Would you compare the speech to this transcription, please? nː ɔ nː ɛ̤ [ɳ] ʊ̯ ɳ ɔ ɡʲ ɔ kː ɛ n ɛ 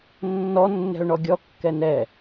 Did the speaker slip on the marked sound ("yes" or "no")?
yes